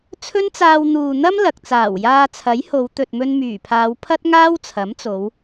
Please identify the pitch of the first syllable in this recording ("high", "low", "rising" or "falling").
high